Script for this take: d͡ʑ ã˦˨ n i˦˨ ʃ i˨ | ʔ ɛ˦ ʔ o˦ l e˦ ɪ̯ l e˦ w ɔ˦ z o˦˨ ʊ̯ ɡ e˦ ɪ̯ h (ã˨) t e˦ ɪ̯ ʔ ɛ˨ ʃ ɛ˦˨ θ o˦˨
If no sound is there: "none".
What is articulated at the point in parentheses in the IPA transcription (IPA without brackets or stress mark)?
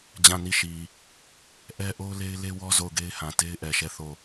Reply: ã˨